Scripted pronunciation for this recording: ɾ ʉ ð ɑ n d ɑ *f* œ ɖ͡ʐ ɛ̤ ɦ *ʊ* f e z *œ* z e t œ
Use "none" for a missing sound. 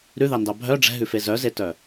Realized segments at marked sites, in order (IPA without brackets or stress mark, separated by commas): bʱ, ʉ, œ